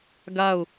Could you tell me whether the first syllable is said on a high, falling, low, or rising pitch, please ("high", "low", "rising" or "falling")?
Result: falling